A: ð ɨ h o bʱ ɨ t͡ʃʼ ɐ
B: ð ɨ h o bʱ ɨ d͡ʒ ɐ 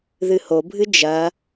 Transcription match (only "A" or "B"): B